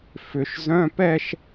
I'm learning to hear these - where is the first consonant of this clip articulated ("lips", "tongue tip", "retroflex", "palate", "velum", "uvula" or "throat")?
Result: lips